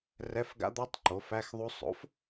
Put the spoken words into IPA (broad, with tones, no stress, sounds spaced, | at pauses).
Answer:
r ɛ˧˥˧ f ɡ a̰˦˥ d̪ ɔ˦˥ tˤ ǃ o˩˥ f æ˧˥˧ x ðˤ u˦˥ sˤ o̰˩˥ f